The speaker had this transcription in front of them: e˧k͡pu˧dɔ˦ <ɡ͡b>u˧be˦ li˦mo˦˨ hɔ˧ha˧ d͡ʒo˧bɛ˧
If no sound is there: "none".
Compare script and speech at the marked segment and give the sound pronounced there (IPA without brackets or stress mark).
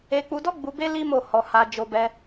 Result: ɡ͡b